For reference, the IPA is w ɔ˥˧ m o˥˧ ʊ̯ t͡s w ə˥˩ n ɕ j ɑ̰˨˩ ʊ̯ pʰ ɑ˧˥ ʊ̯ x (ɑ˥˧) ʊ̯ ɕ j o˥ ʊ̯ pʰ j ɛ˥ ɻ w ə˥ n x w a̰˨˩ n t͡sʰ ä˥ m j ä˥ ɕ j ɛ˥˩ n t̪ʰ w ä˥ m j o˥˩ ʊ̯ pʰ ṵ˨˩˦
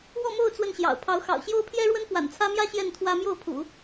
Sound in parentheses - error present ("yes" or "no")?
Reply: yes